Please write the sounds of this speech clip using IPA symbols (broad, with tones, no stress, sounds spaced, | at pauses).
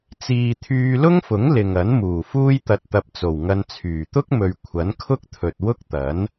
t͡s iː˨ t̪ʰ yː˧ l ʊ˥ ŋ f ʊ˨˥ ŋ l ɪ˨ ŋ ɐ˨˥ n m uː˨˩ f uː˥ j t̪ ɐ˧ t̚ t̪ ɐ˧ p̚ t͡s o˨˩ w ŋ ɐ˧ n t͡sʰ yː˨˩ t̪ ʊ˥ k̚ m ɵ˨ ɥ kʷʰ ɐ˨˥ n kʰ ʊ˥ k̚ t̪ʰ ɵ˨ t̚ w ʊ˥ k̚ t̪ ɐ˨˥ n